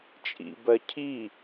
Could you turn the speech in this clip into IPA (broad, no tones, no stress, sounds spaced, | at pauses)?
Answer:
t͡ʃʼ ḭ b ɜ cʰ i